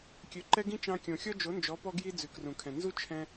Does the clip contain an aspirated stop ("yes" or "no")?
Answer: yes